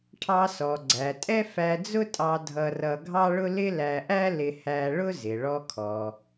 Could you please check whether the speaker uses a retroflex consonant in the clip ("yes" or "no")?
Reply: yes